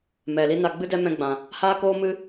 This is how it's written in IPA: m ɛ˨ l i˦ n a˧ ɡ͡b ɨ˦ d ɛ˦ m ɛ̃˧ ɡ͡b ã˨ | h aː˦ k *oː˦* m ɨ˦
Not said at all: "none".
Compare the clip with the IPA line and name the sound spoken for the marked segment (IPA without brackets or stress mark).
oː˦